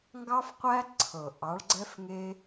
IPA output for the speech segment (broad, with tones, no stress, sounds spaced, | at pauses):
ŋ ɡ ɑ˦ f qʷ æ˦ ǀʰ ɤ˨ ʔ ɑ˨˦ ɭ ɡ͡ǀ ɛ˦ f ŋ e˦